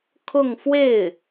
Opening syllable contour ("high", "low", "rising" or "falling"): falling